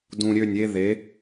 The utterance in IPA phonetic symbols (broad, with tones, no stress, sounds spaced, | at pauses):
d ũ˨ ɾʲ ø˦˨ nʲ e˦ ð e˨˦